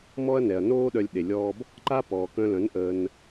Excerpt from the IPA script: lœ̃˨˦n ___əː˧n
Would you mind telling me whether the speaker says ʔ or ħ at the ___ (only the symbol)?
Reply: ʔ